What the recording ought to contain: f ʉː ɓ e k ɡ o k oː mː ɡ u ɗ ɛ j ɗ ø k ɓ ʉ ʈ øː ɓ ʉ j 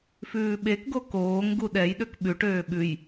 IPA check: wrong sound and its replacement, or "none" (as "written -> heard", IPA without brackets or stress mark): mː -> ŋ